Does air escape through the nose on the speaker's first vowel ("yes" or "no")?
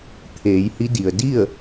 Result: no